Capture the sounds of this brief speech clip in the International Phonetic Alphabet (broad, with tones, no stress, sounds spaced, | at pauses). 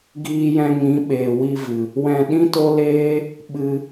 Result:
ɡ iː˧ j ɛ̃˧ ŋ ĩ˨˦ ɓ eː˨ w i˧ v ɨ˨ | w ɛ̃˧ ɗ ĩ˦ t o˦ l eː˦ | ɓ ɨ˧